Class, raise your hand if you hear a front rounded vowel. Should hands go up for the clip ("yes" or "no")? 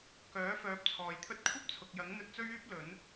yes